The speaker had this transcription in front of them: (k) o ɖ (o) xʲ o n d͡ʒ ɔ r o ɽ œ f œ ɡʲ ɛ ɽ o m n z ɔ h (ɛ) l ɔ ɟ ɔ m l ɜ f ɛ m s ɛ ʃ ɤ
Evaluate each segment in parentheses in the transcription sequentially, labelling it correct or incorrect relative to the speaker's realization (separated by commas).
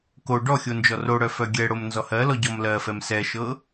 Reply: correct, incorrect, incorrect